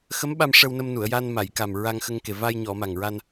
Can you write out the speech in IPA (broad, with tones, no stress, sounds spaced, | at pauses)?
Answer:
x ə˧˥ m ɓ a˧ m ʂ ə˧ w n ə˧ m n u˨˩˨ ə̯ j a˧ n m a˨˩˨ j k a˨˩ m ɹ a˧ ŋ x ə˧ ŋ k e˨˩ v a˧ j ɲ ɔ˨˩˨ m a˨˩ ŋ ɹ a˧ n